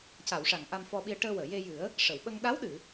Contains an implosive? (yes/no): yes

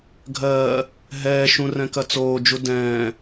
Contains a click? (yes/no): no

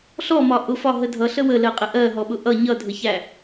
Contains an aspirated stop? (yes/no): no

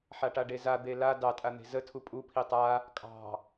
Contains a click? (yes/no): no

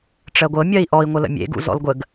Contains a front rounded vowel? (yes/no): no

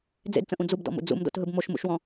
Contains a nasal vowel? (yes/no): yes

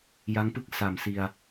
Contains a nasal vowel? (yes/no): no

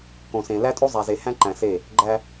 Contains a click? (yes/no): yes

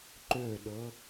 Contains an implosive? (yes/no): yes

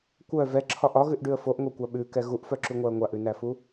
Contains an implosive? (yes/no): yes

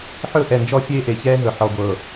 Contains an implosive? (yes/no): no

